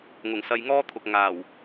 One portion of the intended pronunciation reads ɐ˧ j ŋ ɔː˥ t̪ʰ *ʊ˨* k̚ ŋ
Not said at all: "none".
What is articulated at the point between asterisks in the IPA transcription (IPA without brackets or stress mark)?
ʊ˨